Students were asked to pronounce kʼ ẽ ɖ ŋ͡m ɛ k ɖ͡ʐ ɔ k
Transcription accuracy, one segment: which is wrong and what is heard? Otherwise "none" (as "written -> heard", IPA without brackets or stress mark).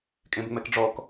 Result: ɖ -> b